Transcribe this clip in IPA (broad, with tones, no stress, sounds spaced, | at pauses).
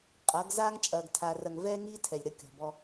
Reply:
qʼ ɐ˨˦ ɡ z aː˦ ŋ t͡ʃʼ ɐː˨ ɡ tʰ aː˨ r ɐ˨ ŋ v ɛː˦ ŋ iː˦ tʰ ɛ˨ lʲ ɾ ɐ˦˨ kʲ ɔ̤˨ b ɔ˦